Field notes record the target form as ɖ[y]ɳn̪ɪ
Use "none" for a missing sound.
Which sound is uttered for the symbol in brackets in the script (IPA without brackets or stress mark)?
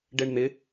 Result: e